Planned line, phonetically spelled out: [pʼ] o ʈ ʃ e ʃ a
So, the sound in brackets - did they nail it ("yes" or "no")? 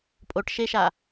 yes